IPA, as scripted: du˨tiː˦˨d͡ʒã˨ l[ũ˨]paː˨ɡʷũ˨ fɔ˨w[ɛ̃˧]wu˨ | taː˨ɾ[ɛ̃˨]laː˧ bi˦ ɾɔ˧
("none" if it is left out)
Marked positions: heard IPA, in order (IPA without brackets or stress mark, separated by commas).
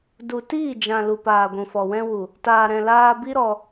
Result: u˨, ɛ̃˧, ɛ̃˨